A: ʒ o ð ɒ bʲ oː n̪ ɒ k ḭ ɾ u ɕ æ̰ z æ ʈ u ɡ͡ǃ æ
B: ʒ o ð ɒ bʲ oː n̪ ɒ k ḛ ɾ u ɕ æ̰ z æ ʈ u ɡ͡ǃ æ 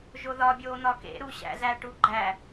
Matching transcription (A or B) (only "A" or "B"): B